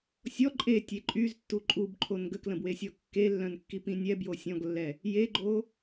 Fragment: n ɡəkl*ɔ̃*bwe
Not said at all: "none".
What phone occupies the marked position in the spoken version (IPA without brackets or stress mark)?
ə̃